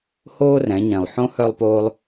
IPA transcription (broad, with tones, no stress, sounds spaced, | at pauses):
h oː˥ r ɛ̃˩˧ ɲ ɛ̃˩ lˠ ħ õ˧˥ h œ˧ lˠ p oː˧ lˠ